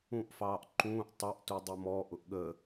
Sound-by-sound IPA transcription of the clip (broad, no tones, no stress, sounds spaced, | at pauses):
ũ ʔ f ɑː ʔ ǃ ũː ʔ tˤ ʌ ʔ t u dˤ ʊ m ɔ ʔ ʊ ʔ ɠ ə